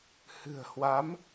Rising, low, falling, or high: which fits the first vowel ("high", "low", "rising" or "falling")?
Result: low